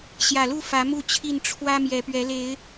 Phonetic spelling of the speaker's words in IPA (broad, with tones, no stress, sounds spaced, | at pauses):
ɕ j ä˨˩ l u˥˨ f ä˨˦ m u˥˨ t͡ɕʰ i˥˨ n ʈ͡ʂʰ w ä˦ m j ɛ˨˦ p ɥ ɛ˨˦ l e˨˦ ɪ̯